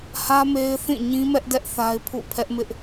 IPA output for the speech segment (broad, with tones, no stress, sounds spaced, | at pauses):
h ä˦ m e˦ ɪ̯ θ ĩ˦˨ ɲ ĩ˦ m ɛ˦ ʔ d ɛ˦ ʔ θ a˦ ɪ̯ pʰ ṵ˦˨ pʰ ɛ˦ ʔ m ɪ˦ ʔ